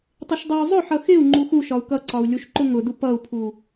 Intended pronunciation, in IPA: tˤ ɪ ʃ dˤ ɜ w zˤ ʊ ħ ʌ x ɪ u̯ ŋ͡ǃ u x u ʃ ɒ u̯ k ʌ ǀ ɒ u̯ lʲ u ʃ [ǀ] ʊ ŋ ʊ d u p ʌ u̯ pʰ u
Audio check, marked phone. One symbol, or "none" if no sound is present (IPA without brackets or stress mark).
ǃ